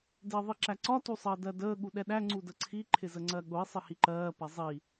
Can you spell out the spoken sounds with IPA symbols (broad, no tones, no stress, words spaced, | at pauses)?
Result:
dɪːðˤiǁæǀɒ tusˤəːdɜdəː ɠuɗɛɗæ ŋ͡ǀudəǀʰi ǃʰɪzəŋ͡ǀɜɠʊi̯ sˤɪhiǃɜː pɛzˤi